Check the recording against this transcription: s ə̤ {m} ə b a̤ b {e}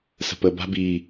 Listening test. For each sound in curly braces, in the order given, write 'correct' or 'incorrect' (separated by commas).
incorrect, incorrect